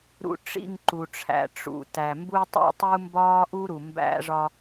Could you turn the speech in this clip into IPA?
ɾṵ˦ ʈ͡ʂḭ˦˨ŋǃu˨ʈ͡ʂʰæ̰˨ ʈ͡ʂṵ˨tæ˨mbu˦ tˤo̰˦tˤu˦ mbɒː˦ʔu˦ ɾu˨mbæ̰˦ʐɒ˦

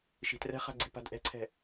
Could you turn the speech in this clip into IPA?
ʃi̤trɛ̤χa̤ ɡ͡ǀi̤pa̤dʔɛ̤ǀʰɛ̤

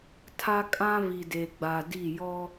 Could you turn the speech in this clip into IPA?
tʰa˦ kʼã˦ vi˨de˨ɡ͡ba˨ di˦˨ jɔ˦

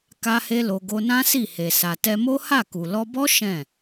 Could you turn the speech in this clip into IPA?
ka˦he˦lo˧ ɡo˧nã˦si˦˨he˨ sa˨tɛ˧mo˦ha˦˨ ku˨lɔ˧bɔ˦ ʃɛ̃˦˨

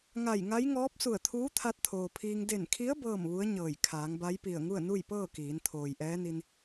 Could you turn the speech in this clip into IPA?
ŋa˧˩jŋa˧˥jŋɔː˧˥p̚ su˧˩ə̯t̪ʰuː˧˥t̪ʰa˧t̚ t̪ʰoː˩pʰiː˧ŋ de˧˩nkʰi˧˥ə̯ bɤː˥˨mʋu˧˥ə̯ɲɤː˧˩j kʰaː˩˧ŋba˧˥jpi˧˩ə̯ ŋu˥˨ə̯nu˥˨jpɤː˥˨ kiː˩˧nt̪ʰoː˩jʔɛː˧˥ni˧n

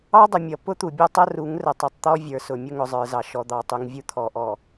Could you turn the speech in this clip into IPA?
ɑ˦dˤʊ˨mʲʌ˨ pʊ˦t̪u˨ bʲɔ˦tˤʌ˦ru˨˦ŋ rə˨tˤu˨tˤt̪ɔ˦ vʲə˞˨sʊ˨mʲʊ˦ ŋʊ˨zˤə˞˨zɑ˨ ʃɔ˨d̪ɑ˨tˤu˨ŋvʲu˦ t̪ʰɔ˨ʔɔ˨

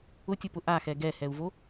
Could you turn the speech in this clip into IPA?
ʊtʲʊpʊ ʔaxɛ ɡɛhɛu̯vo

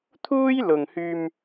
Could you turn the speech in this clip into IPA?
t̪ʰuː˥jlʊ˨ŋhyː˧m

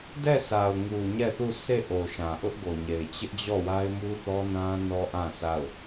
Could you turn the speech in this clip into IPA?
dɛ˦˨sʰa˨ʊ̯ŋu˨ ɲɛ˦˨θu˦˨ se˦˨ʔo˨ ʃã˨ʔʊ˦ʔ ɡo˨ɲe˨ɪ̯ t͡ɕɪ˦ʔd͡ʑɔ˦˨wa˦ɪ̯ mu˦θɔ˦nã˦ nɔ˦ʔã˦˨sʰa˦˨ʊ̯

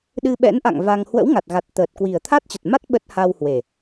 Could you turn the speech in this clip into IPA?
ɗɨ˧ɓɛ̰˧˥nʔa̰˧˨ŋ va˧ŋ hwə̰˧˥wŋa˨˩t̚ɣa˨˩t̚ t̪əː˨˩t̚kwi˨˩ə̯ t̪ʰa˦˥t̚t͡ɕə˨˩t̚ma˦˥t̚ ɓə˦˥t̚ ha˧whwe˨˩

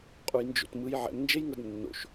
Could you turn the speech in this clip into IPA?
qʼujnd͡ʒo̰tmɯj ʕɛ̰m nd͡ʒejŋɤdnːo̰ʃ

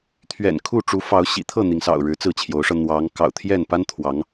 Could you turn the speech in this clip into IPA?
t̪ʰɥɛ̰˨˩nkʰu˥˨ʈ͡ʂu˨˦ fɑ˨˦ʊ̯ɕḭ˨˩ t̪ʰɤ˥˨n̪i˩ŋsɑ̰˨˩ʊ̯ ɻɻ̩˨˦t͡sɹ̩˥˨t͡ɕʰjo˨˦ʊ̯ʂɤ˧ n̪wɑ˨˦ŋ kɑ̰˨˩ʊ̯t̪ʰjɛ˥˨npa˦n t̪ʰwɑ˨˦ŋ

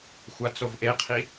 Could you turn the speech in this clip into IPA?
xʷat͡sovʔeqʰi

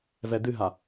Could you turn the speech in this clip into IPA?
vɛd̪ɨɦa

